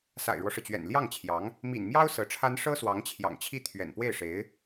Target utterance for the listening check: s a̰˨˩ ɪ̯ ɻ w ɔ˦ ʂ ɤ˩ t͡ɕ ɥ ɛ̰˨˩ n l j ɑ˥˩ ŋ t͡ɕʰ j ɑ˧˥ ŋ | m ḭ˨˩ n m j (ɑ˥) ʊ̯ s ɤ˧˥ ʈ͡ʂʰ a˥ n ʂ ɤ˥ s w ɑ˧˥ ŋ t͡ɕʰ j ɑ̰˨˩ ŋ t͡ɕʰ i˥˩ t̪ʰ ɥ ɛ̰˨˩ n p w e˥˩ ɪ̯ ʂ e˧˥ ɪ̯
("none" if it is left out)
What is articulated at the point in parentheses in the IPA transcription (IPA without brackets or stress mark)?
ɑ˥